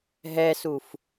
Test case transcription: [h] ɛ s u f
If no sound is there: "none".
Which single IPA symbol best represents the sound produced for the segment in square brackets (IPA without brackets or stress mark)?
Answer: ɦ